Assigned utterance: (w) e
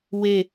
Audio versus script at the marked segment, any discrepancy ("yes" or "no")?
no